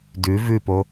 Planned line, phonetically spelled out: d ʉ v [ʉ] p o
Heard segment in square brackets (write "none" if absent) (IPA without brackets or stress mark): ʉ